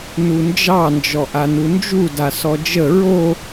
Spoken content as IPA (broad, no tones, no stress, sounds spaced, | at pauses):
n u n d͡ʒ ɑ n d͡ʒ ɔ ʔ a n u n d͡ʒ u d a s ɔ d͡ʒ ə ɹ o